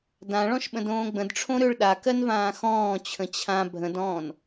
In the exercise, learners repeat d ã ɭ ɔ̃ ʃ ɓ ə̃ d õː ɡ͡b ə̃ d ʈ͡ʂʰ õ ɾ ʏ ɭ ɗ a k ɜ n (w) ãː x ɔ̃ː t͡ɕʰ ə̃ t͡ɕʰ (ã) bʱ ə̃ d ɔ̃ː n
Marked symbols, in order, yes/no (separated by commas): no, yes